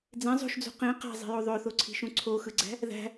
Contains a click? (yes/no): yes